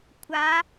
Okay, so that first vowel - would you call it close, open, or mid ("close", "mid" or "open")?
open